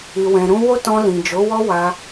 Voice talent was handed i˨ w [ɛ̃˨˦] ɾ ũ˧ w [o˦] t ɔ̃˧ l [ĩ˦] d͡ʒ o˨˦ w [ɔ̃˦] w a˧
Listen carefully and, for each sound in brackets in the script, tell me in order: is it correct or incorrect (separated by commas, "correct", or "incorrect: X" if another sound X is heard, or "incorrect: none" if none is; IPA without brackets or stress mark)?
incorrect: ɛ̃˨, correct, incorrect: ĩ˨, incorrect: ɔ˦